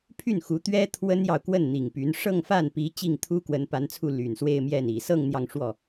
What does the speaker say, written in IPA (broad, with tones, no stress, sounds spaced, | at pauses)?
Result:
pʰ y˥˩ n x u˧˥ t̪ ɥ ɛ˥ t̪ʰ w ə˥ n j ɑ˨ ʊ̯ k w ə˥˩ n n̪ i˨˩ ŋ p y˧˥ n ʂ ɤ˥˧ ŋ f a˥˩ n p i˧˥ t͡ɕ i˥˩ ŋ t̪ʰ u˥ k w ə˧˥ n p a˧˥ n t͡sʰ u˥˩ l y˨˩ n s w e˥˧ ɪ̯ m j ɛ˥˩ n i˨˩ s ɤ˥˧ ŋ n̪ j ɑ˥˧ ŋ ʂ w ɔ˥˩